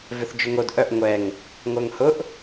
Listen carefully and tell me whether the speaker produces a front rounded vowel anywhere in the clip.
yes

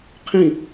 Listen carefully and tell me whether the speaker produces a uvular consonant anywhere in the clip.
yes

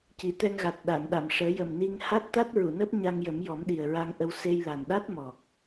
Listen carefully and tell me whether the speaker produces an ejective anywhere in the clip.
no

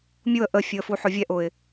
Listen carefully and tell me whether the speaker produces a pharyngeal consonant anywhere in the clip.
yes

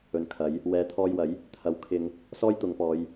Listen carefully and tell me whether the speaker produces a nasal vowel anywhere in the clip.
no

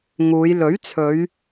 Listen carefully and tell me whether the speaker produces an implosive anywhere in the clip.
no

